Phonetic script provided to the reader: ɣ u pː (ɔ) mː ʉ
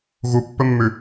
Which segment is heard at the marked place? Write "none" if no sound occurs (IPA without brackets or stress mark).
ɵ